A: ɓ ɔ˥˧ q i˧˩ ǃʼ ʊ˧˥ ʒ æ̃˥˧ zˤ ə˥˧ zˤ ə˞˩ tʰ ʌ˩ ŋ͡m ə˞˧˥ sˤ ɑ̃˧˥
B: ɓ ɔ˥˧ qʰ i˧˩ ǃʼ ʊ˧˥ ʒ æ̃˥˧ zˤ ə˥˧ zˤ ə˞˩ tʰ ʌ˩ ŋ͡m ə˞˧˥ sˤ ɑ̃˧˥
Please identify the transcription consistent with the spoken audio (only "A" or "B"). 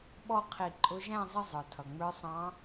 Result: B